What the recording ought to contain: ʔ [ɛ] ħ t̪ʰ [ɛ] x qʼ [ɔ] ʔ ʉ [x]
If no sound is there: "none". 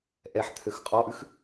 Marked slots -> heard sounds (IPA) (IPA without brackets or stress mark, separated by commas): ɛ, ø, ɔ, x